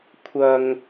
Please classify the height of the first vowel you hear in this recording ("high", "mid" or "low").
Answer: low